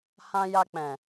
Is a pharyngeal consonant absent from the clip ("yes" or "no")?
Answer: yes